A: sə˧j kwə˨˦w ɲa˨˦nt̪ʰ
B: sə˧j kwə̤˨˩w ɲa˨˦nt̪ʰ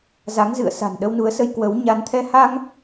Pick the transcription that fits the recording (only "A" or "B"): A